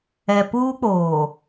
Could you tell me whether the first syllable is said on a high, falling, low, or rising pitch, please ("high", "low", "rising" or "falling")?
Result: low